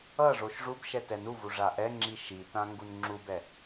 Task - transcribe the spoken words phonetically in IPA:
ʌ ʐ o ʃ ʐ u b ʃ ɛ t ɛ n u v u ʐ a ʔ ɛ ŋ͡ǁ i ʃ i t ã ŋ ɡ u n ŋ͡ǁ u b ɛ

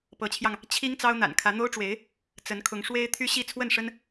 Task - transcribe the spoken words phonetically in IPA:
p ɤ˧˥ t͡ɕʰ j ɑ˧ ŋ | t͡ɕʰ i˥ ŋ t͡s ɑ˥ ʊ̯ n̪ a̰˨˩ n kʰ ä˧˥ n̪ o˥ ʊ̯ ʈ͡ʂ w e˧˥ ɪ̯ | t͡s ə˧˥ n kʰ ʊ˧˥ ŋ ʂ w e˥ ɪ̯ t̪ʰ y˥ ɕ i˥˧ t͡sʰ w ə˥˩ n ʂ ə˥ n

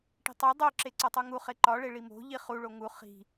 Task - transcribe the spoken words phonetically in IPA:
ʈ i̤ tˤ e dˤ o ǁ e ǀ ɒ tˤ u ŋ u χ e ǃ ɒ ɭ e ɭ i m o̤ ʎ i χ u ɭ o ŋ u χ i̤

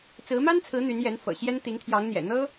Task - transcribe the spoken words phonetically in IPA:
t͡s ɹ̩˧˥ m a˥ n t͡sʰ ɹ̩˧˥ n̪ y˧˥ n j ɛ˧˥ n f ɤ̰˨˩ ɕ j ɛ˥ n t̪ i˧˥ ŋ t̪ʰ j ɑ˧˥ ŋ n̪ j ɛ̰˨˩ n̪ ɤ˥

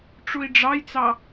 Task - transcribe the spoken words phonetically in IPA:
ʈ͡ʂ u i̯ ɖ͡ʐ ɑ j t͡s ɑ

